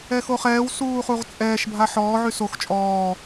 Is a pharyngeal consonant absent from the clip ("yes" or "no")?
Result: no